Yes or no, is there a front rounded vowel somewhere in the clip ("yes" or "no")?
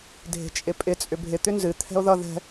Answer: yes